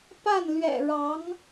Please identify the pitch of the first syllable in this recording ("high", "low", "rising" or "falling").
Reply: falling